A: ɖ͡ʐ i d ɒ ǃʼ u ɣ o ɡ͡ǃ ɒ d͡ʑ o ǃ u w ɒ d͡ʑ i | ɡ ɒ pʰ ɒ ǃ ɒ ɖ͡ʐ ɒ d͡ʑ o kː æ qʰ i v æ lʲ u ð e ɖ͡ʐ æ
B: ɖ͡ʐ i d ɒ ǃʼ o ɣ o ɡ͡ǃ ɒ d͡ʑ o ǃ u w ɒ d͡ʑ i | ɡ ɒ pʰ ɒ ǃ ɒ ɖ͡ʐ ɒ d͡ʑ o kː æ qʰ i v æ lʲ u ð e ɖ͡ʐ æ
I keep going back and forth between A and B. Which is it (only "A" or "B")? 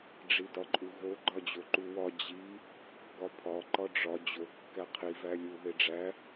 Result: A